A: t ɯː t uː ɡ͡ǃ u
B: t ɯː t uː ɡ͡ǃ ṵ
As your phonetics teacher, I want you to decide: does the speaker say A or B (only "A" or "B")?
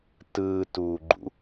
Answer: B